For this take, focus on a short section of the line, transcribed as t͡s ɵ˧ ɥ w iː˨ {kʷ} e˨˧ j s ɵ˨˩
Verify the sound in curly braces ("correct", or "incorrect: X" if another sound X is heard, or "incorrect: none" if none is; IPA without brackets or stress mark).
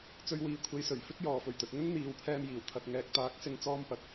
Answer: incorrect: kʷʰ